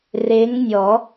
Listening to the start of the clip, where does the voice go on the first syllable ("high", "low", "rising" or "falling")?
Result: rising